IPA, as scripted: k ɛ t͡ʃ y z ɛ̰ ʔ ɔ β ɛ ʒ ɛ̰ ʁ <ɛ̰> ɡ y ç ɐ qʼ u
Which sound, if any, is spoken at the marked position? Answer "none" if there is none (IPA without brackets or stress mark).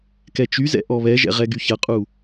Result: ɛ